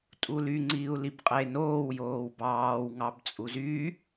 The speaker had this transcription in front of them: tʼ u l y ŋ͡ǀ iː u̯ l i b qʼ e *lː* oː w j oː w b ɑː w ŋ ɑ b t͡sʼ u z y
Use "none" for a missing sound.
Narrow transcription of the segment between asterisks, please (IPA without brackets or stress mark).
n